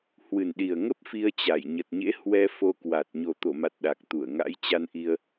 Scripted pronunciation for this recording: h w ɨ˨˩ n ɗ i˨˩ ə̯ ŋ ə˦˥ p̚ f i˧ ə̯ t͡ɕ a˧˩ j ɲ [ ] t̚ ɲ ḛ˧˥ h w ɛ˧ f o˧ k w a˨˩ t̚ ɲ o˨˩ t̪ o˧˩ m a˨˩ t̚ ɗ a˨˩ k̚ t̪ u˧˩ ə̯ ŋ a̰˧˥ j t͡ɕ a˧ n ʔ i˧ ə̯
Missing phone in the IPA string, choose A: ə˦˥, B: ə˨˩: B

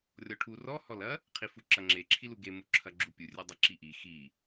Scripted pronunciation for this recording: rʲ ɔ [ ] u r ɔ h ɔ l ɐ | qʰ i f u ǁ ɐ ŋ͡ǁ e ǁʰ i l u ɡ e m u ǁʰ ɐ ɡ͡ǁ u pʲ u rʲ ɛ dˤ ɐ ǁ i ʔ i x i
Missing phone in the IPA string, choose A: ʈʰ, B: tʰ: A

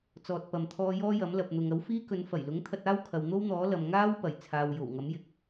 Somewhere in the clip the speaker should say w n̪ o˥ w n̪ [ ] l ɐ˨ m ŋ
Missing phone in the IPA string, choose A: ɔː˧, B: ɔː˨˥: B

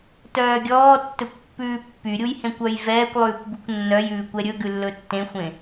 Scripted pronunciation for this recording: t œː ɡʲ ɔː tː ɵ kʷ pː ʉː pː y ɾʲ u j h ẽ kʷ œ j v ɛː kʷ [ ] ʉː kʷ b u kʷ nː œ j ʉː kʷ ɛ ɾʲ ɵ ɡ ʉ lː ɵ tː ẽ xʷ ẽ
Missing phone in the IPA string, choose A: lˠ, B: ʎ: A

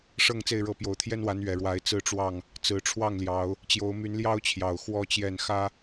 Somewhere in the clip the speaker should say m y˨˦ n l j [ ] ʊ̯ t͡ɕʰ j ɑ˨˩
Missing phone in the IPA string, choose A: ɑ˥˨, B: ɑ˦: B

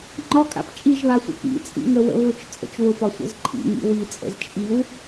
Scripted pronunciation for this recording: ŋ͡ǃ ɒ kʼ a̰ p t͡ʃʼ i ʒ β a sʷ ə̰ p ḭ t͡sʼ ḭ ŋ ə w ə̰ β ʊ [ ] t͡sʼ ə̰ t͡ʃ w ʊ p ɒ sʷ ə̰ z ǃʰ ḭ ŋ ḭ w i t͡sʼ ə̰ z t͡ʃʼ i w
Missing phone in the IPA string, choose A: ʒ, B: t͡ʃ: B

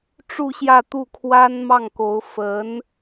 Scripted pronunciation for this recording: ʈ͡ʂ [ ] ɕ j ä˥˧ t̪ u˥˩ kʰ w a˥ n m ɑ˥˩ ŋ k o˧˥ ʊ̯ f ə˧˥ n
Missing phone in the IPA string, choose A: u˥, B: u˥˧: B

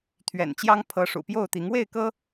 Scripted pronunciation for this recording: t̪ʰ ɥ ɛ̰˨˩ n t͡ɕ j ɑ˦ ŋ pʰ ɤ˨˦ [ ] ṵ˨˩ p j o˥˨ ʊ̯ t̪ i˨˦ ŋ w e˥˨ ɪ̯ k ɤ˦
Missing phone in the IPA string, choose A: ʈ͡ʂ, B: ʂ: B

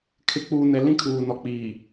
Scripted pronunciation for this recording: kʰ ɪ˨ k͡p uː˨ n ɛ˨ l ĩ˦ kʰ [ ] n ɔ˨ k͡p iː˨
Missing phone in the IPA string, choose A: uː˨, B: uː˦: A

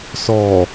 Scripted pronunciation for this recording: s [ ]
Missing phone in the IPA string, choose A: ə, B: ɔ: B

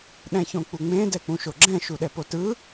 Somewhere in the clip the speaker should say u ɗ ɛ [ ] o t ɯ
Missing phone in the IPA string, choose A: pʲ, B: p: B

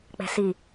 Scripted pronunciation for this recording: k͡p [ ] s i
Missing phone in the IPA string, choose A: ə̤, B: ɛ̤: B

